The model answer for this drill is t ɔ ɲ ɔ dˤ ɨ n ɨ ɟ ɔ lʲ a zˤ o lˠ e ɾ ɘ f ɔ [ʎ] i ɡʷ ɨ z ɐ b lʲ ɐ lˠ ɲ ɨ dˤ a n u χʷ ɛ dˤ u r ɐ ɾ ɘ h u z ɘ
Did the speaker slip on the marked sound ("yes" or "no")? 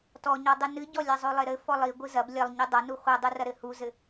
yes